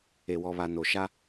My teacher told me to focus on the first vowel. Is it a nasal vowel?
no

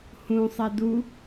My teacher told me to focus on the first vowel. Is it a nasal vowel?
yes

